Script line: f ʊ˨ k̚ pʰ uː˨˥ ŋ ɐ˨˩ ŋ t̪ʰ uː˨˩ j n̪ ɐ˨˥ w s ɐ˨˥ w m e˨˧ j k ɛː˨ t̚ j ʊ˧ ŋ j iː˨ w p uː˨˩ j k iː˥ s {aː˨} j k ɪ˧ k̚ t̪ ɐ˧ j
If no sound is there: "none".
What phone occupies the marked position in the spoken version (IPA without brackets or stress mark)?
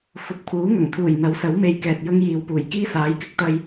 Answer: aː˨˥